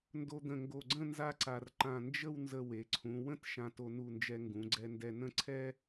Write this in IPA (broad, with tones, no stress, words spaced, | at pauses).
ndo˧d̪ə̃˧˩ŋɡo˧˩ɡ͡ǀə̃˥˧ nza˥ǀa˧r ǃã˧˩nd͡ʒə˥˧wnzə˧ we˩˧ǀʰũ˩˧wə̃˥t ʃã˧to˧nu˧˩nd͡ʒɛ˧ ŋɡũ˩˧ɡ͡ǀɛ˧ndɛ˧ nə̃˥˧ ǀʰɛ˥